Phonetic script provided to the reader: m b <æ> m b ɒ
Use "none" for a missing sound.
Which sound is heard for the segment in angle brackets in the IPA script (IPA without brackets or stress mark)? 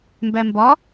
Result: æ